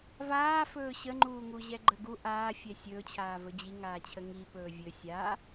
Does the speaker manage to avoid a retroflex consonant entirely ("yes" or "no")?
yes